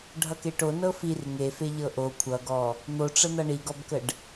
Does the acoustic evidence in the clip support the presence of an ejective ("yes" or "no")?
no